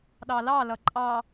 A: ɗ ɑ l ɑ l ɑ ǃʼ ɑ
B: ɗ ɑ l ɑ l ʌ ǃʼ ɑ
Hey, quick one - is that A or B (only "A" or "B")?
B